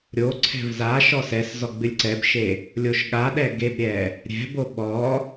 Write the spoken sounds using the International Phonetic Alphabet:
ɾʲoǀʰɛ̤v za ʃɔsɛszɔ ɡ͡bɨlʲǀɛbʃe | lʲoʃɠaɗɛ ɡebɾʲɛ | ɾʲɛ̤bo ɓɔ

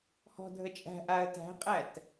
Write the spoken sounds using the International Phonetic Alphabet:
hɔ̤dʱə t͡ʃʼæ̤ʔaə̯ tæ̤qʼæt

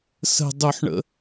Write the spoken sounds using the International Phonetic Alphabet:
sə̤ dˤuħɳə̰

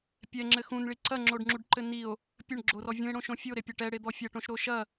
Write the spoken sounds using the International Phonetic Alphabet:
pʲɛŋ͡ǁɘ xũnɭi ǀɐŋ͡ǁoɖŋ͡ǁuɖǃɘ nio̯ | pʲɘɳɡ͡ǁorɔ vʲũe̯ɽõʃõ fʲoɾepʲɐ ʈɛɽed̪ɔ fʲɐʈõʃɾo ʃɐ

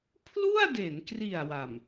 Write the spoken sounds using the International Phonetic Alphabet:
pʰlu˥˩a̯de˩˦nkri˨˩a̯ wa˨˩m

